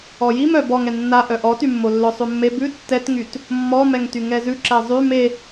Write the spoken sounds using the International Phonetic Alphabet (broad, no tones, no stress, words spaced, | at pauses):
ɔjim œb ɔŋɛ nːa ʔœʔɔtymːo lːœsˤʉmːe bʉ tːɛtŋyt | mːɔmɛŋty ŋɛzʉ ǁɛzˤy me